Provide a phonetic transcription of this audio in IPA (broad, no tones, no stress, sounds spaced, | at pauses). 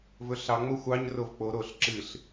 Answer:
v ɵ ɬ ɑ ŋ͡m o xʷ ɑ ɲ r o v k͡p o ɾ o ɬ ǁ ɨ ɬ